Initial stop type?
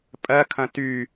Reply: ejective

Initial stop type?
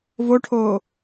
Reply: aspirated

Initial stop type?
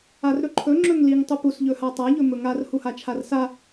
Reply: click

